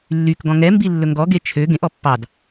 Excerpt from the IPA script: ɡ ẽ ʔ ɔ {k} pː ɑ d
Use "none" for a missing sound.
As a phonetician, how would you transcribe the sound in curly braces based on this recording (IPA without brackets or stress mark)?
none